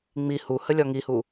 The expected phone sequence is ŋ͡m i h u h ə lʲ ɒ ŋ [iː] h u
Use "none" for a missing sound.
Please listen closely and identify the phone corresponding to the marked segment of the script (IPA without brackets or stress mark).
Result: i